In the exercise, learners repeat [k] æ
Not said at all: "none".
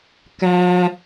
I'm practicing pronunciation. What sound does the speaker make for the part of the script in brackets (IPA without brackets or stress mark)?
k